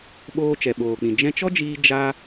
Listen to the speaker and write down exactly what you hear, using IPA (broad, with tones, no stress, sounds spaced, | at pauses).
ɓ oː˧ t͡ʃ ɛ˨ ɓ oː˨ k͡p ĩ˨ d͡ʒ ɛ̃˧ t͡ʃ ɔ˦ d͡ʒ iː˧ d͡ʒ a˦